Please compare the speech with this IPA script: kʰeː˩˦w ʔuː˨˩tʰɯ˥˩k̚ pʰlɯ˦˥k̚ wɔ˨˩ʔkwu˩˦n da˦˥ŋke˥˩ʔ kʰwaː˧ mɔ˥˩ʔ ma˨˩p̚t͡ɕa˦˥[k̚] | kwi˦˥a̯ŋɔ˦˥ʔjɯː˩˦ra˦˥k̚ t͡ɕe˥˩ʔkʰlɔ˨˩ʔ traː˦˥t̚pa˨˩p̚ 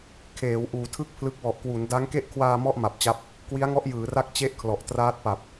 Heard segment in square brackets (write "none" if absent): p̚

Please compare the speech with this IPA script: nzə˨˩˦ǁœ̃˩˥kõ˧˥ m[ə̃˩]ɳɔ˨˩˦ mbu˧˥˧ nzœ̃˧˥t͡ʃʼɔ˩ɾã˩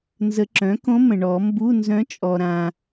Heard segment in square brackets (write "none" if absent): ə̃˩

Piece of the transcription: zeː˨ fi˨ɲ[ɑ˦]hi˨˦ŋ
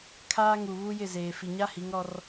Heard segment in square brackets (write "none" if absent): a˦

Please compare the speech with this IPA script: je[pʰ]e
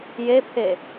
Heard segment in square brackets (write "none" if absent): pʰ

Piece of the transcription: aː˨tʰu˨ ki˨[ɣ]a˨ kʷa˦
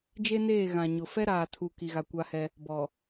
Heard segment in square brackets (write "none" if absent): ɣ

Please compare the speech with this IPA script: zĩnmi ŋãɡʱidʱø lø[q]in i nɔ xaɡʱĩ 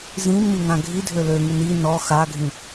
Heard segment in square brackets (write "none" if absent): ŋ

